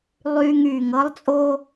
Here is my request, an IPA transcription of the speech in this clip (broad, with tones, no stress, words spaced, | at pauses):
lˠyː˧ŋ yː˨ŋ ɤ˦lˠt͡sʼo˦